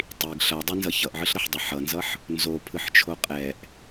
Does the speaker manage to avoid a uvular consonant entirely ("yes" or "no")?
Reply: no